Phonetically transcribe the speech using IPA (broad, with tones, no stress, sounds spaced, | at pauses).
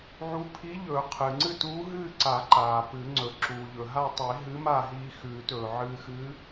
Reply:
ʕ u˧˥ pʰ i˧˥ ʎ ɵː˨˩˦ qʰ ɨː˩ ŋ͡ǀ ɨ˥˨ t uː˧˥ ɦ ɨː˥˨ ǀ a˨˩˦ ǃ aː˩ p ɨ˨˩˦ ŋ͡ǀ ɵ˩ ǁ uː˩ ʎ ɵ˩ ɦ a˥˨ tˤ i˨˩˦ ɦ ɨ˧˥ m a˥˨ ɦ iː˧ x ʉː˨˩˦ t ɵː˩ ʕ ɨː˧ x ɨː˧˥